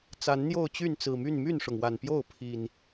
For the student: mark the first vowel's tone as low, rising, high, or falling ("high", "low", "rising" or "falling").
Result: rising